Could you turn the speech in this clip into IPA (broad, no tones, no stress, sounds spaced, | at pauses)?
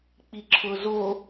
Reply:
k͡p i ǁʰ ʊ z o